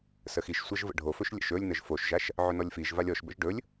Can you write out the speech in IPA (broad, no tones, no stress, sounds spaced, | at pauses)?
s ə x i ʃ sʷ a ʒ v ə̰ ɖʱ o f ɵ ʃ lʲ ə̰ ʃ ɵ lʲ n ə ʒ f o ʃ ʒ a ʃ | ʕ ɵ n ɔ lʲ f i ʒ v a lʲ ɔ ʃ b ə̰ ʒ ɖ ɵ lʲ